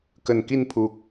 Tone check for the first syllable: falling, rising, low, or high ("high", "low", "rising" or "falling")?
low